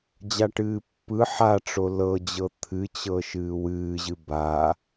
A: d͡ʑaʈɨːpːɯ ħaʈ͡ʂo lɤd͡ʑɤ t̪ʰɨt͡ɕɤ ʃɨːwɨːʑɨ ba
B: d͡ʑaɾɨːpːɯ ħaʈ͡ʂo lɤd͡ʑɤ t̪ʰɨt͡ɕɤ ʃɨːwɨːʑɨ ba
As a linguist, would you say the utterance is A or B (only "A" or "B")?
A